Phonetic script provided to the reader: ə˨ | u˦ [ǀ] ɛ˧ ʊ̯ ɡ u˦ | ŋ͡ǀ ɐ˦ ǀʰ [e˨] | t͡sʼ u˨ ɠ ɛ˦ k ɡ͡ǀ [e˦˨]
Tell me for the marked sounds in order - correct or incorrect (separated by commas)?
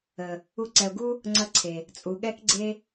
correct, correct, incorrect